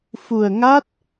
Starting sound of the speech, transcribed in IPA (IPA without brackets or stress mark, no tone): f